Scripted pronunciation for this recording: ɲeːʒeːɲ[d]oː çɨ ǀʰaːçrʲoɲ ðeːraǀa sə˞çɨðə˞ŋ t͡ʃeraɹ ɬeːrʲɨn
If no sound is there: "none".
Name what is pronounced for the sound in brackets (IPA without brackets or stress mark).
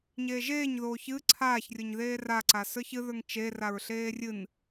ð